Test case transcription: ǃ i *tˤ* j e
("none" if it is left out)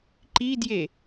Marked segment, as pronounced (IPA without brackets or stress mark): d